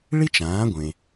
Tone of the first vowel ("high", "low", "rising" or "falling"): high